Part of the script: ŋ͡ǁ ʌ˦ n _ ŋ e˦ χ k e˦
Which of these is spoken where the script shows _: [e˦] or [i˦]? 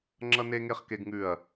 e˦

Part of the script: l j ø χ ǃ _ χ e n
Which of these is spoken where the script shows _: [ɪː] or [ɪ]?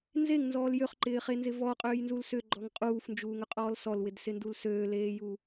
ɪː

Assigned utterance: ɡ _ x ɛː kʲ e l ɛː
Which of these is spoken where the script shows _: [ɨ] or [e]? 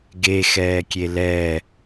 e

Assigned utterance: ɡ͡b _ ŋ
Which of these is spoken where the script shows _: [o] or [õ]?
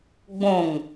õ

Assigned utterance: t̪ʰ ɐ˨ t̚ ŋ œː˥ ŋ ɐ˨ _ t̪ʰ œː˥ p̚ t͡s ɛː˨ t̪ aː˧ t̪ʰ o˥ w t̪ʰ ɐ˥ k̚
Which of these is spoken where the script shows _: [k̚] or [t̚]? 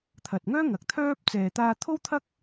k̚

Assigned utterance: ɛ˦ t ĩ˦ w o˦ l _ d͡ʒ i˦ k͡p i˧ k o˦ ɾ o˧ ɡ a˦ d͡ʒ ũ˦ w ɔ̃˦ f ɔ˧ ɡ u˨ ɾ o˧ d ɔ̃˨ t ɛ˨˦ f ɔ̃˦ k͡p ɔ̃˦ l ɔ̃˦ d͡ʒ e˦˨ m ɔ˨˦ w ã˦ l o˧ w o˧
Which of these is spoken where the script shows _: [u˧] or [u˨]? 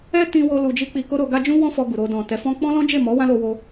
u˧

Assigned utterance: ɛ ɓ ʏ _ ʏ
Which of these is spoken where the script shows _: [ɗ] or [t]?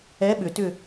t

